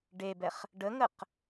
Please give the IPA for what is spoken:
ɖ e b ɛ χ | ɖ ə ŋ ə q

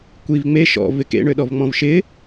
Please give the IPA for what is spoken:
kʷ i v ŋ͡m e ʃ ɔ̰ v ɪ k ḛ ɳ ø ɗ ɔ v ŋ͡m ɔ̃ v ʃ ɪ

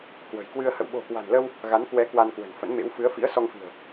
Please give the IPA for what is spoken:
k w ə̤˨˩ j k w ɨ˧ ə̯ h ə̰˧˨ w ɓ o̤˨˩ k w a̤˨˩ n l ə˧ w | ɣ a˨˦ n k w ɛ˨˦ k w a˧ n k w ə̤˨˩ n f ə̰˧˥ n m ḛ˧˥ w f ɨ˨˦ ə̯ f ḭ˧˥ ə̯ s ɔ˧ ŋ f i̤˨˩ ə̯

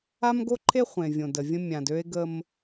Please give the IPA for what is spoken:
a˦ m ɡ o˦ ǃʰ e˦ χʷ ẽ˨ vʲ õ˨ d ə˨ vʲ ə̃˦ mʲ ã˨ d ø˦ e̯ ɡ ə˦ m

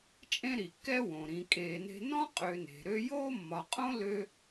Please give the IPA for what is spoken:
t͡ʃʼ ẽ˦ ɾ i˩ kː ɛ˦ w õ˩ ɾ ĩ˨ kʼ eː˨ n e̤˦ n ɔ̃˥ qʼ ø˨ n e̤˩ ɾ ø˦ j oː˥ mː ɒ˨ qʼ õ˥ l ø˦

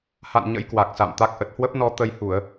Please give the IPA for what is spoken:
h a̰˧˨ n ɲ ə̰˧˥ j k w a˨˩ k̚ s a̰˧˨ m t̪ a˦˥ k̚ ʔ ə˨˩ t̚ h w ə˦˥ p̚ n ɔ˧ t̪ ə˧ j h u˧˩˨ ə̯

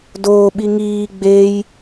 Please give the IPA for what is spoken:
d oː ɓ i ŋ iː ɡ͡b e j

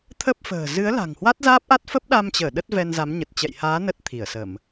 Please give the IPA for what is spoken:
t̪ʰ ə˦˥ p̚ f ə̤ː˨˩ z ɨ˨˦ ə̯ l a̤˨˩ ŋ h w a˦˥ t̚ z aː˦˥ p̚ ʔ a˦˥ t̚ f ə˦˥ p̚ ɗ a˧ m t͡ɕ əː˧˩ ɗ ə˦˥ t̚ v ɛ˧ n z a˨˦ m ɲ ə˨˩ t̚ t͡ɕ ɛ̰˧˨ j h aː˨˦ n ə˦˥ t̚ t̪ʰ i˧˩ ə̯ s ə˧˩˨ m

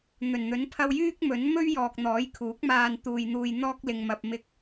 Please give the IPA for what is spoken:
n̪ ɵ˨˩ n n̪ ɵ˨˥ n pʰ ɐ˧ w j yː˥ k̚ m ɵ˨˥ n m ɵ˥ ɥ j ɔː˨ k̚ n̪ ɔː˨˥ j kʰ uː˨˥ k̚ m aː˧ n t̪ uː˧ j n̪ uː˧ j n̪ ɔː˥ k̚ l ɪ˧ ŋ m ɐ˧ p̚ m ɪ˧ k̚

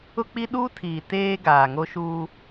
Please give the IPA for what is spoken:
ʊ˦ k͡p i˦ ɗ uː˦ tʰ iː˨ t eː˦ ɡ aː˨ ŋ o˦ ʃ uː˦

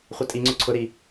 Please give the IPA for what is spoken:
χʷ ɐ tʼ i ŋ͡ǀ ʏ ǀʰ ʊ ɾ i

